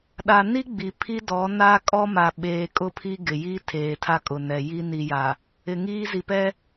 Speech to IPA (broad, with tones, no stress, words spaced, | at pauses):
ɗa˨ni˦ ɡ͡bi˨ pʰi˦dɔ˨˦ na˦ kʼɔ˦ma˨ ɓeː˨kʼʊ˦ pʰi˦ɡɪ˨ ji˦ tʰeː˨tʰa˦ kʼʊ˨nɛ˨ ji˦ni˨ja˨ | ɪ˨ŋiː˦ zi˨pɛ˦